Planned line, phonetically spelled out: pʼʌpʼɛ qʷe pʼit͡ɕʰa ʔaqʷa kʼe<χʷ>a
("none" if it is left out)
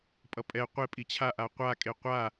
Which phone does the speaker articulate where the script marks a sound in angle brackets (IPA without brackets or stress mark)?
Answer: qʷ